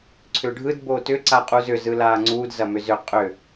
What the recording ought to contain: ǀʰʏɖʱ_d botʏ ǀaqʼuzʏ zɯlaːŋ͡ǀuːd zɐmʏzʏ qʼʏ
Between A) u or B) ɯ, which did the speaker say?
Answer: B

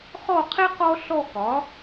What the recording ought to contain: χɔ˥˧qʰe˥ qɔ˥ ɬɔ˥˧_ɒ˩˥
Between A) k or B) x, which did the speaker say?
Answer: A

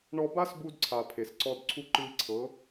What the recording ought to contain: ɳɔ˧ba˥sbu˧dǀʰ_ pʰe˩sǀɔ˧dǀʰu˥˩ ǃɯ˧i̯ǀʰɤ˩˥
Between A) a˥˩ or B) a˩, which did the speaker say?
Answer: B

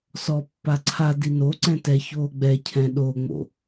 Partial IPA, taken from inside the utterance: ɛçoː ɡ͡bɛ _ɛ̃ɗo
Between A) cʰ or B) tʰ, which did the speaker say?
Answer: A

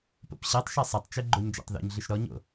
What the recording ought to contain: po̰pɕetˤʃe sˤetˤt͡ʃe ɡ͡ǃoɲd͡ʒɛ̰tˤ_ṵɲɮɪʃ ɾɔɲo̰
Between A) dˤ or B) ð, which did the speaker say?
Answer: B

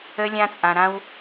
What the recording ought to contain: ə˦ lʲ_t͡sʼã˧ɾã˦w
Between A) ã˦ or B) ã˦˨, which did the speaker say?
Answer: A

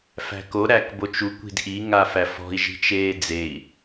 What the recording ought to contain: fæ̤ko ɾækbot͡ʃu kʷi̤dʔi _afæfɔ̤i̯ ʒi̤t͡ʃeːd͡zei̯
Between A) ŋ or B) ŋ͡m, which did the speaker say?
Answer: A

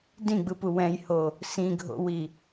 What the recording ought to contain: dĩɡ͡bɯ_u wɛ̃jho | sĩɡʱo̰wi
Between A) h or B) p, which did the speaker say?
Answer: B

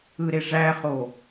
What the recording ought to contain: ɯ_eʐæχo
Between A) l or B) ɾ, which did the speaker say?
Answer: B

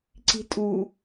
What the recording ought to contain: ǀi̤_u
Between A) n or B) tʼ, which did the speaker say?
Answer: B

